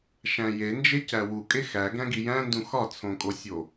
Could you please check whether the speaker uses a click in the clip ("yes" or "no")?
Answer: no